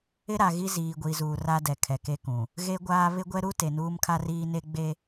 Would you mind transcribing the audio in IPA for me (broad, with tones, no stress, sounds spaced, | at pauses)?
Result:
ɪ˦ ɾ a˨ ɣ i˦ z iː˨ ɡʷ i˨ z uː˨ r a˦ d ɛ˨ kʰ ɛ˨ k e˦ k ũ˨ | ɣ e˦ ɡʷ aː˦ β ɪ˦ ɡʷ ɛ˦ ɾ u˦ t e˨ n uː˦ m kʰ a˦ r iː˦ n e˦ ɡ͡b e˦